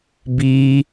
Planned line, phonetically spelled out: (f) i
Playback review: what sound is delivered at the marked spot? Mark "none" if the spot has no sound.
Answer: b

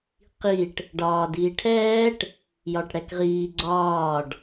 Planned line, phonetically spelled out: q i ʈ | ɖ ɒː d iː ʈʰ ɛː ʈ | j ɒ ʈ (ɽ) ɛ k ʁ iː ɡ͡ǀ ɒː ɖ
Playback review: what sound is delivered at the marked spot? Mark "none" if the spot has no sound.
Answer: ɽ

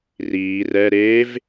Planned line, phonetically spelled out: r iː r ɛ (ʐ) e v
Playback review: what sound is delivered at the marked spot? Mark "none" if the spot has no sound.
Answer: ɾ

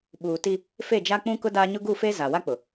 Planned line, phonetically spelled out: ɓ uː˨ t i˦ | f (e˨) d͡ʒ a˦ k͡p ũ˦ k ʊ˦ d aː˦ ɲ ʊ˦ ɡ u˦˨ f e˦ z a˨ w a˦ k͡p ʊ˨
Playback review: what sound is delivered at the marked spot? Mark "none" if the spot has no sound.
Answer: e˦˨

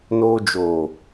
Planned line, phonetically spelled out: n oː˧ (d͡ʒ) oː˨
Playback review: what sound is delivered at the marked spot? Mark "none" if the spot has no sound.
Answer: d͡ʒ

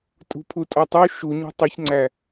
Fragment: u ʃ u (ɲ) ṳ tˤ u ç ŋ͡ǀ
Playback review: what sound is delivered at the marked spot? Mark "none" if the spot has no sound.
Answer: ɲ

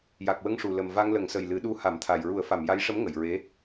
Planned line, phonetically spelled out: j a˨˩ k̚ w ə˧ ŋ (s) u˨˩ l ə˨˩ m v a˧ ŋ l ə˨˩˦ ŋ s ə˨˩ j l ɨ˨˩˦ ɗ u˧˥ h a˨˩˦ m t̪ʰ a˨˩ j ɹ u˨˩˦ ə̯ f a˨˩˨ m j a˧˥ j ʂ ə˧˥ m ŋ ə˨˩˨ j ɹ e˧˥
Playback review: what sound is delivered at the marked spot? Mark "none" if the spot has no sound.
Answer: ʂ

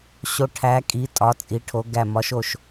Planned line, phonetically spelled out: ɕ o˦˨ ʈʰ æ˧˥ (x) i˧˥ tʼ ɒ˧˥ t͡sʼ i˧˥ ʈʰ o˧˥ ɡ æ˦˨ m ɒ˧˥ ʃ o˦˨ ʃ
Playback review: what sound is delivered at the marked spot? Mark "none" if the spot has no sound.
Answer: kʼ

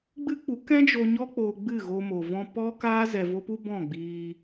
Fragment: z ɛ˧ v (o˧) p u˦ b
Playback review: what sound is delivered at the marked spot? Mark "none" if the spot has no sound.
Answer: o˦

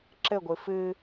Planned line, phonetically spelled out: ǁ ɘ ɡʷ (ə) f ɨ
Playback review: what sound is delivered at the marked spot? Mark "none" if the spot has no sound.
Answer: ɨ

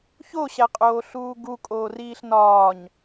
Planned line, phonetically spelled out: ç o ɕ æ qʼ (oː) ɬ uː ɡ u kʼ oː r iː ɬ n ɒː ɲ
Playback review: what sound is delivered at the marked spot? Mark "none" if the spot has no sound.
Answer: oː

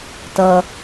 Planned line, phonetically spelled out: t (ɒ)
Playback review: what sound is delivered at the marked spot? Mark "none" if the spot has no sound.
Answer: ʌ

